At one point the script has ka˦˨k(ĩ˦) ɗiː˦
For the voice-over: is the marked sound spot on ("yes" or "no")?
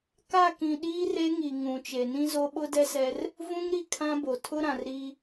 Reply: no